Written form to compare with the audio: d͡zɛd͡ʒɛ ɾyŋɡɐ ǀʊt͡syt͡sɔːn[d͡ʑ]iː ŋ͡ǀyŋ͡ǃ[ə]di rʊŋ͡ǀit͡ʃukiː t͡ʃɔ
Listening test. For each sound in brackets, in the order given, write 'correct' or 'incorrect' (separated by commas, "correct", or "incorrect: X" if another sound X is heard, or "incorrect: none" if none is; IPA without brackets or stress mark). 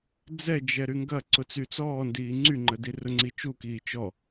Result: incorrect: d, correct